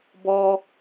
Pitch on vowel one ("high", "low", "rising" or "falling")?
low